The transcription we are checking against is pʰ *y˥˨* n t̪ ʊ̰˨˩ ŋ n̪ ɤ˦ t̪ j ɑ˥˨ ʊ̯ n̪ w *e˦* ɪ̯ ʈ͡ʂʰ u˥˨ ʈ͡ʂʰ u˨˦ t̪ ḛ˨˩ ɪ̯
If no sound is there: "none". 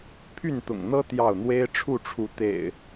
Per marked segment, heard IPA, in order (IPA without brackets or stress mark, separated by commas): y˥˨, e˦